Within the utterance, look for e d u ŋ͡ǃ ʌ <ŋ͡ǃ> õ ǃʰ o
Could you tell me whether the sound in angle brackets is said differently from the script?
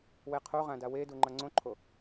yes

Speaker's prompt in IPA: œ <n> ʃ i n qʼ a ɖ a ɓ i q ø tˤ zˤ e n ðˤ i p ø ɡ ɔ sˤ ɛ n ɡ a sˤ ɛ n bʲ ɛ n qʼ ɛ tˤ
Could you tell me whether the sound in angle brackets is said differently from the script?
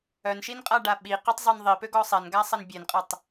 no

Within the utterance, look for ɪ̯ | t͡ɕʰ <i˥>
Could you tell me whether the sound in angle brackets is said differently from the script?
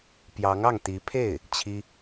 no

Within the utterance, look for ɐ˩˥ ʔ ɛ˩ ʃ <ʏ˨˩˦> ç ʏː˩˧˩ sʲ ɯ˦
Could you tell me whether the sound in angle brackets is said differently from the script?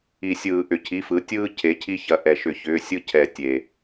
no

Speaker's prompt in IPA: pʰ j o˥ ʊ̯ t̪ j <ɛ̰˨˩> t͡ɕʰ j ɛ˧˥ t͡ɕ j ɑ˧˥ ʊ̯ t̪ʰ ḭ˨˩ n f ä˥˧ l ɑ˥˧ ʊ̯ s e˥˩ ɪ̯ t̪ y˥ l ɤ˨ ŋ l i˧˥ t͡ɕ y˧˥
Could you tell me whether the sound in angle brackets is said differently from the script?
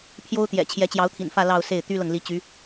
no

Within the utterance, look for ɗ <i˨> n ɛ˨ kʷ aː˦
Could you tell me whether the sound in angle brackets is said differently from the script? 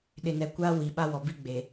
yes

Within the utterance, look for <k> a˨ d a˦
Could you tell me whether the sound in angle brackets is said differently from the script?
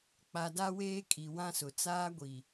yes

